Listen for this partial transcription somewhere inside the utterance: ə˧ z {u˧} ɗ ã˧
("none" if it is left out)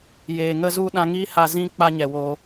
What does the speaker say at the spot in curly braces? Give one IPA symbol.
u˧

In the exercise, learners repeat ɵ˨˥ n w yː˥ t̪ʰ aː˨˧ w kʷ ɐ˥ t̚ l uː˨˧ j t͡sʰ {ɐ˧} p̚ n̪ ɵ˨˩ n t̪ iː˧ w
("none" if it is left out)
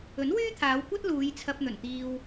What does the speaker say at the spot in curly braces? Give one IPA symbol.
ɐ˧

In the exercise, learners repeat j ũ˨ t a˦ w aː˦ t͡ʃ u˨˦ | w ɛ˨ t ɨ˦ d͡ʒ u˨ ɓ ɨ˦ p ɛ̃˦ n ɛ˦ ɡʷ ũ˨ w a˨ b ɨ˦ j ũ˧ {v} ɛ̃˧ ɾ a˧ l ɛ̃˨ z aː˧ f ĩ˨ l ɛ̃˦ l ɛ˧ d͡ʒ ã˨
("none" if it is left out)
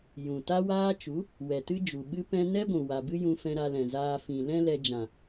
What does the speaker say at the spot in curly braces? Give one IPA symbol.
f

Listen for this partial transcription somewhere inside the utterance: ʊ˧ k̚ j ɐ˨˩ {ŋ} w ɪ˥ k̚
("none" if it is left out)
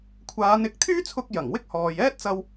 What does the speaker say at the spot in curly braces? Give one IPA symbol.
ŋ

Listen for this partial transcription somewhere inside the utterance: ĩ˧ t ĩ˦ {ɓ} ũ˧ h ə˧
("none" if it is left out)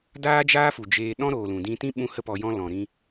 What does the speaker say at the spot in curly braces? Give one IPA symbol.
ɓ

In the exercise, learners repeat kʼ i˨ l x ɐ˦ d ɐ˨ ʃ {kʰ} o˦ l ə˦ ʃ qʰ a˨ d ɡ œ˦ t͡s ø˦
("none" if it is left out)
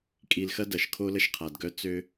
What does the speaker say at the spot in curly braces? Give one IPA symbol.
kʰ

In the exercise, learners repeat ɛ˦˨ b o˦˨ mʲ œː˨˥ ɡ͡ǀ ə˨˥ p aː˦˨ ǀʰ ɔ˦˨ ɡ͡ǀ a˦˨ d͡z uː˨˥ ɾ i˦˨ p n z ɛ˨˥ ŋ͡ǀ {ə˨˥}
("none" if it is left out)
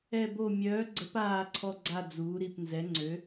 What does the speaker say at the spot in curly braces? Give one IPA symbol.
ø˨˥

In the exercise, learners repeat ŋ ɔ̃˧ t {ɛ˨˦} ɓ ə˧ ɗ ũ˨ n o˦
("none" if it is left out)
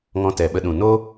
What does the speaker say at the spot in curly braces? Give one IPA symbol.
ɛ˨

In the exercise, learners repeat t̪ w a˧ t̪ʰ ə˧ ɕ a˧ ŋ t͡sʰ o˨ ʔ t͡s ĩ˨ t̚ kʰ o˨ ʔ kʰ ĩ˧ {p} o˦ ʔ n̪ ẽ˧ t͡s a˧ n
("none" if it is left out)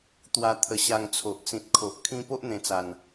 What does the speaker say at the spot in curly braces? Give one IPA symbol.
p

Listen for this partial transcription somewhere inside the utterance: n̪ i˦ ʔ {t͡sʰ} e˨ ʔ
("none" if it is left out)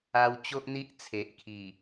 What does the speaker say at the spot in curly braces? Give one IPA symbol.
t͡sʰ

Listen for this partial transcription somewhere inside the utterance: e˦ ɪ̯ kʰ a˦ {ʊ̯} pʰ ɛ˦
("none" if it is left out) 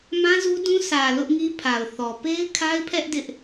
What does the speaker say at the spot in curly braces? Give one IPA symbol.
ɪ̯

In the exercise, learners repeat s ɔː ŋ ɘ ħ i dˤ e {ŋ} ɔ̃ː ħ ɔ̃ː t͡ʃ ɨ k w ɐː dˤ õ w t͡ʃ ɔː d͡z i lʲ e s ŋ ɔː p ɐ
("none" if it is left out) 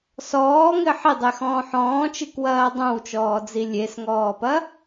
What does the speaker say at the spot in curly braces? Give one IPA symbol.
x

